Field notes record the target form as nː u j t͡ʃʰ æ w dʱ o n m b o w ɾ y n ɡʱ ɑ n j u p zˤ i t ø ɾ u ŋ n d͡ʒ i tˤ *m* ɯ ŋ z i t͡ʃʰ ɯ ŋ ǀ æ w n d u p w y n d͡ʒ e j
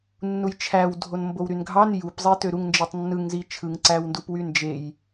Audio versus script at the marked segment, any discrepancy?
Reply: yes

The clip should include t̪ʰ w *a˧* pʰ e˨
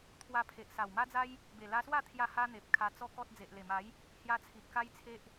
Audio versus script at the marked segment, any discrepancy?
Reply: no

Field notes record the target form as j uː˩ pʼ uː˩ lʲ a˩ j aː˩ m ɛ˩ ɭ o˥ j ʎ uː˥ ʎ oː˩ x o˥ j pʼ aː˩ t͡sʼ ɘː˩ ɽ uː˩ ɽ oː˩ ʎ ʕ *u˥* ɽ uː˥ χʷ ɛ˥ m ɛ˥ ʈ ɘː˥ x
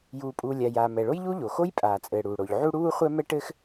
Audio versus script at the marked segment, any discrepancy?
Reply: no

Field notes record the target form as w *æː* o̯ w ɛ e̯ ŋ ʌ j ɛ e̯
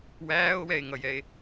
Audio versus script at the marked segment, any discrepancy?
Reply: no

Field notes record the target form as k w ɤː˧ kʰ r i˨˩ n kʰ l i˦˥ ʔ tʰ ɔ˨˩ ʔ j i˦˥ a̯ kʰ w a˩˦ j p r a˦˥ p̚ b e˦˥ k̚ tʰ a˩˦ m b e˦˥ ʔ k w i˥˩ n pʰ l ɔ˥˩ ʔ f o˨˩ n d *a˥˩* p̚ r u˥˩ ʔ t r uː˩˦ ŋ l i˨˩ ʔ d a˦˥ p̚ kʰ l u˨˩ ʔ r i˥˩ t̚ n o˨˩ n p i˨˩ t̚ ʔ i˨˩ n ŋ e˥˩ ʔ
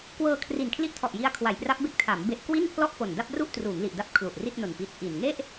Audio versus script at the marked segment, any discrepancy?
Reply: no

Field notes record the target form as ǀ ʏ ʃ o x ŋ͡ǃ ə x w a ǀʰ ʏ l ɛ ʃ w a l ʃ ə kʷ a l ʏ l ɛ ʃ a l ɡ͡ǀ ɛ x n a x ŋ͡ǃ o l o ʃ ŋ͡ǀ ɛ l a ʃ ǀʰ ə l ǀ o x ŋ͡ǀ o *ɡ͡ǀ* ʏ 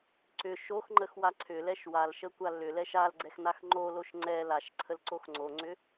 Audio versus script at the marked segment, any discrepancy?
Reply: yes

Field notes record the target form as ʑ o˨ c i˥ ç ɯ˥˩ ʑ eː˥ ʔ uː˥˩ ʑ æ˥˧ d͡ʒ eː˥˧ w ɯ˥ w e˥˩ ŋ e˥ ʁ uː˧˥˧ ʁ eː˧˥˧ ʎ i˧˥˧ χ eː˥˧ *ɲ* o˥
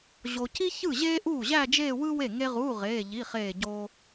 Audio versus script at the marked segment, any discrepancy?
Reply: yes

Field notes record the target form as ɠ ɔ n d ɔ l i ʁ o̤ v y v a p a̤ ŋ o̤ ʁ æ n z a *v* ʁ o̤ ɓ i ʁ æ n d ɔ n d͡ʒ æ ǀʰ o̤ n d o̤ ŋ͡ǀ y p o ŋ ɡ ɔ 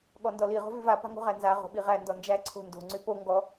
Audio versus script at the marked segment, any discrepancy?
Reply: yes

